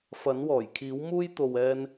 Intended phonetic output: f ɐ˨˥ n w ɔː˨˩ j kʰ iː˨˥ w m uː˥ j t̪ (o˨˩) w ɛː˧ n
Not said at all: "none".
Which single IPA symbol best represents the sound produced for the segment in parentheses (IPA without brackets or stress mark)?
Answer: o˨